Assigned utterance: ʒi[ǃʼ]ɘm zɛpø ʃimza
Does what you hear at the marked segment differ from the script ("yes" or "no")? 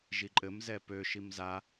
no